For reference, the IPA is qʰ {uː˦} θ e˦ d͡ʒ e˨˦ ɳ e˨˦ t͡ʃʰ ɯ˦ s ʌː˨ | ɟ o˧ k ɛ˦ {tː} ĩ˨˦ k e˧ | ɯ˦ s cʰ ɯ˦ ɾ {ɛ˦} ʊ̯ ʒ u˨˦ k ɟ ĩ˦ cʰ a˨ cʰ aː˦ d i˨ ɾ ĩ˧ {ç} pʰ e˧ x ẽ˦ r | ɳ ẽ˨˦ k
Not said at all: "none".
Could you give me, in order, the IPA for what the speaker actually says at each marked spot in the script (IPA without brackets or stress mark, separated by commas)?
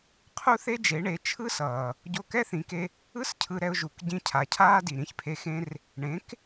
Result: u˦, θ, ɛ˦, ç